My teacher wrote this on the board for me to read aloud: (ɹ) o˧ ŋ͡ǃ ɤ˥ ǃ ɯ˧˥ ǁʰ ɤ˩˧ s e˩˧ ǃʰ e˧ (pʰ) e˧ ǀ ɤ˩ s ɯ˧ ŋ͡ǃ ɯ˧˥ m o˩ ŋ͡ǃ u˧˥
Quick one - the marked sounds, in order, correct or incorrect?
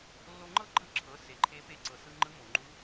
incorrect: lː, incorrect: p

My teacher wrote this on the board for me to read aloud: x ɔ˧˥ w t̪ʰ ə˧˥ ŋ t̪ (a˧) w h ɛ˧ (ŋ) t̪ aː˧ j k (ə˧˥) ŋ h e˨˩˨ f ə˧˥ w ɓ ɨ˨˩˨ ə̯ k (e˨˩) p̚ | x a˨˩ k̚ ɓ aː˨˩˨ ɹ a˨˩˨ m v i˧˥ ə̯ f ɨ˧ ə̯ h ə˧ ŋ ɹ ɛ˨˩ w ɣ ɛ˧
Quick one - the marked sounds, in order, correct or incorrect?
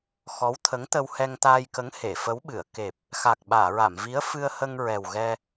incorrect: ə˧, correct, correct, correct

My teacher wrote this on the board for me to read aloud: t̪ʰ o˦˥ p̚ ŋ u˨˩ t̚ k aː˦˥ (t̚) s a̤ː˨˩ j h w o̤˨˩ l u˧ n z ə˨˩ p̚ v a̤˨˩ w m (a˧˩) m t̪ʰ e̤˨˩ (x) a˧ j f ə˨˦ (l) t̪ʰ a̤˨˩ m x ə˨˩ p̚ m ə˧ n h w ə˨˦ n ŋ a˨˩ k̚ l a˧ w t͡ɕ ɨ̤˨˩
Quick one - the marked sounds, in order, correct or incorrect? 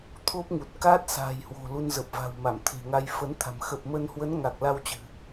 correct, correct, incorrect: ŋ, incorrect: n

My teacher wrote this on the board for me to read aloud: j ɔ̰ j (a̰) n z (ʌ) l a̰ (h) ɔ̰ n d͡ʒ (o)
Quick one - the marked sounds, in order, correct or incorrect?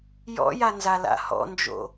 incorrect: a, incorrect: a, correct, incorrect: o̰

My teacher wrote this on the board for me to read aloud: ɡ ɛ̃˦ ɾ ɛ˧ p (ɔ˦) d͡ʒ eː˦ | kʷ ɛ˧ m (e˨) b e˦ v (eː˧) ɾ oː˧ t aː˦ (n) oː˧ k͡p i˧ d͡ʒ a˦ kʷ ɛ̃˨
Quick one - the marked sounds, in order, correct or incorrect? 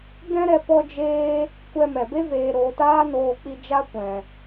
correct, incorrect: ɛ˨, correct, correct

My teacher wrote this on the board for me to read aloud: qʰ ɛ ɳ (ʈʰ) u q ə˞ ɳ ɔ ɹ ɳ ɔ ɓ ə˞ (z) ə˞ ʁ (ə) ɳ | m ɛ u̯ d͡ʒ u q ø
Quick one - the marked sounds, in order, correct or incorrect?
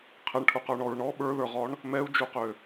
correct, incorrect: ð, incorrect: ɔ

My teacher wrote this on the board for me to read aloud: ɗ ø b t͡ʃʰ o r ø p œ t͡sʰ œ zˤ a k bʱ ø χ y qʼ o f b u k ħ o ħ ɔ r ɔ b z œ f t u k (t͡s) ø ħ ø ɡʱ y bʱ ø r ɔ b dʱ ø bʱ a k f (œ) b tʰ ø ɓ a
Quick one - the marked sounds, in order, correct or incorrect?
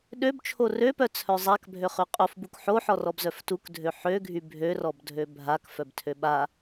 incorrect: dʱ, correct

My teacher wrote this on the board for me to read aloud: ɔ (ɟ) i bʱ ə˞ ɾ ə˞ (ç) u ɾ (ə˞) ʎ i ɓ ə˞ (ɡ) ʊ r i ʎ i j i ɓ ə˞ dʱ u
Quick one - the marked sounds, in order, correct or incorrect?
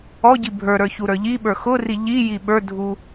correct, correct, correct, incorrect: x

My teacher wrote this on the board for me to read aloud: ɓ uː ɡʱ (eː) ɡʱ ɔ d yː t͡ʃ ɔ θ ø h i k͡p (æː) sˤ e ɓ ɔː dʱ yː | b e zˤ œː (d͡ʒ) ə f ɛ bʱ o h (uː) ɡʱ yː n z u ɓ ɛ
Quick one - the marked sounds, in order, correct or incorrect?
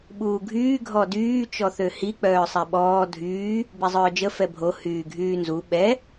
incorrect: yː, incorrect: œː, correct, incorrect: yː

